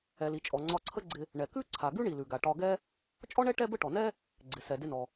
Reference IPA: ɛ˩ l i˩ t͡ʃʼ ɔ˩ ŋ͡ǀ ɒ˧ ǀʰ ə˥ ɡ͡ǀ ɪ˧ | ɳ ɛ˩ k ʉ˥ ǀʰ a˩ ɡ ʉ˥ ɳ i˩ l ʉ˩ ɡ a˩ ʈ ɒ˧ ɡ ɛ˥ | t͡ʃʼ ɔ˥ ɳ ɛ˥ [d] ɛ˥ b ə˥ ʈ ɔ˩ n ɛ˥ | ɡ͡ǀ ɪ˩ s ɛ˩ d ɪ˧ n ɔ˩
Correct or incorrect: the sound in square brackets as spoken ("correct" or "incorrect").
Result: incorrect